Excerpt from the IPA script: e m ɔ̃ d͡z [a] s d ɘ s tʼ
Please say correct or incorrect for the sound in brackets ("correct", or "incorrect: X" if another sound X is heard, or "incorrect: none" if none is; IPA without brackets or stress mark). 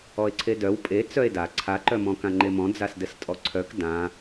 correct